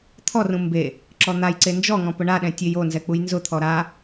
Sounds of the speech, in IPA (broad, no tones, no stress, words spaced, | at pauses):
t̪ʰɔrũ mbe | ǁɔn̪ajǀe nd͡ʒɔŋɔ̃ pʊɳaɗɛ̃ tʲejonzɛ k͡pujnzʊt̪ʰɔ ɾa